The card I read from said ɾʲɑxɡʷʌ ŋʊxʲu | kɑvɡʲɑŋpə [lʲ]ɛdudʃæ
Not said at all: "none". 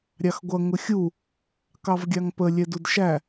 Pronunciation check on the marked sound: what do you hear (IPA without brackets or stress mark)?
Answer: lʲ